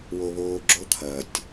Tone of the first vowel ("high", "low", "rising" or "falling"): high